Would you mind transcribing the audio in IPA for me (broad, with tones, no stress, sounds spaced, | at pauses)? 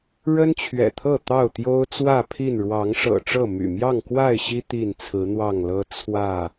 ɻ ə˦ n t͡ɕʰ ɥ ɛ̰˨˩ t̪ʰ ɤ˥˨ t̪ ɑ˥˨ ʊ̯ t̪ j o˦ ʊ̯ t͡s w ä˥˨ pʰ i˥˨ n ɻ w ɑ˨˦ ŋ ʂ ɤ̰˨˩ ʈ͡ʂ ɤ˥˨ m y̰˨˩ m j ɑ˥˨ ŋ k w a˥˨ ɪ̯ ɕ i˦ t̪ i˥˨ n t͡sʰ ɹ̩˨˦ n̪ w ɑ˥˨ ŋ l ɤ˦ t͡sʰ w ä˥˨